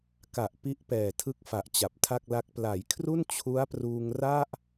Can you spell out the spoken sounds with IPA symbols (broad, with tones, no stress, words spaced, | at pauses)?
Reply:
ka˨˩ʔ pi˦˥ʔpɛː˨˩tʰɯ˦˥k̚fa˨˩ʔ t͡ɕa˨˩p̚tʰa˥˩k̚la˦˥k̚ pla˩˦jkʰru˥˩n t͡ɕʰu˦˥a̯pruː˧ŋra˥˩ʔ